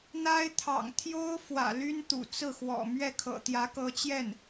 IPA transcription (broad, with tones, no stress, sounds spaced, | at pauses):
n̪ a˥ ɪ̯ t̪ʰ ɑ̰˨˩ ŋ t̪ʰ j o˥ ʊ̯ f w ä̰˨˩ l y˥ n t̪ ṵ˨˩ t͡s ɹ̩˥˩ x w ɔ̰˨˩ m ɥ ɛ˥˩ kʰ ɤ̰˨˩ t̪ j ä˧˥ k ɤ˧˥ t͡ɕ j ɛ˥˩ n